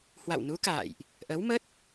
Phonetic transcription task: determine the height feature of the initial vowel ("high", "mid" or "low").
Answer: low